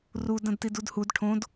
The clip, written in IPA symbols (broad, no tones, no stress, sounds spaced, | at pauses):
r u d ɐ̃ d t i d u d h u d ʈʰ õ d